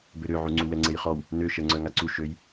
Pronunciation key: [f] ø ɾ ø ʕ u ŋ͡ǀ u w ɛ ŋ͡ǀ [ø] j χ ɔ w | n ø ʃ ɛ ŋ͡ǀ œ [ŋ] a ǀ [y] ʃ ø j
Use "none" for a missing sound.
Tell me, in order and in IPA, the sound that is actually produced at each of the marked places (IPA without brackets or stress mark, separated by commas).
b, e, ŋ, u